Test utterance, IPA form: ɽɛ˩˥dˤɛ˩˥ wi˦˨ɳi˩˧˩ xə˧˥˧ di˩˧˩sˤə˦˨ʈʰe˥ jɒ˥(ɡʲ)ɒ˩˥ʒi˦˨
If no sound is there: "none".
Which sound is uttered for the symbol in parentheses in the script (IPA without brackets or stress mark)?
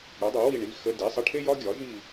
ɡʲ